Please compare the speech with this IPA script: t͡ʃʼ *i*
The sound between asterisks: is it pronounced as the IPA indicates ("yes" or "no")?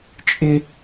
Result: no